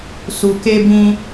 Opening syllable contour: low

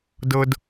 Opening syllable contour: low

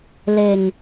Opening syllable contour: low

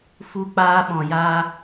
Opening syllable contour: high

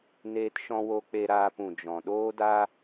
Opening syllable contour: high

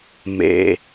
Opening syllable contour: low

